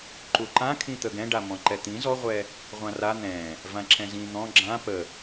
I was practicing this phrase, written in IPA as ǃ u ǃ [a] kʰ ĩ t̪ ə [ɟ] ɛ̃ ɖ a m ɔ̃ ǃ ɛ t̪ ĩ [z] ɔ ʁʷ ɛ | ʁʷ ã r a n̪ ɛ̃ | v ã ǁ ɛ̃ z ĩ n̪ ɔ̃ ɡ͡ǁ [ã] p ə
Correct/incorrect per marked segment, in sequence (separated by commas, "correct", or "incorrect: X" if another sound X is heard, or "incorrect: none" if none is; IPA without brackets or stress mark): incorrect: ã, incorrect: ɡ, correct, correct